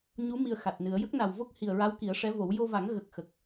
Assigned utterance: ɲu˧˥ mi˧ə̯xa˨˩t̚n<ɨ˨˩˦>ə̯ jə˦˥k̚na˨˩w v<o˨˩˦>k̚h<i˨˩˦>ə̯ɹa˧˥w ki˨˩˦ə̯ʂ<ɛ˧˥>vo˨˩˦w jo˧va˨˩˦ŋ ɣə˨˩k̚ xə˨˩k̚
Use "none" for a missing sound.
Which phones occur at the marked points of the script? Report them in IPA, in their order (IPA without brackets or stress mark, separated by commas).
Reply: ɨ˨˩˦, o˦˥, i˨˩, ɛ˧˥